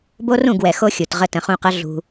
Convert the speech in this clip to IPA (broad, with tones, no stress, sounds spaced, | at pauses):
b o˦ r ũ˦˨ ɡ w ɛ˨ x o˦ xʲ u˨ t ʁ ə˦ t ə̃˨ χ ũ˦˨ q ɤ˦ ɮ ṳ˦